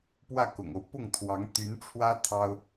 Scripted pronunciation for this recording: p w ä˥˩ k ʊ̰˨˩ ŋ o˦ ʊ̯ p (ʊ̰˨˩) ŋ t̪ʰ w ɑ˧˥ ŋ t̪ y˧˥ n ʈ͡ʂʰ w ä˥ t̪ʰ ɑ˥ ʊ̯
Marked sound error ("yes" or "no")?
yes